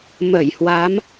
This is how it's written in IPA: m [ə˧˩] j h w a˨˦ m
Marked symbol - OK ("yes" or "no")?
yes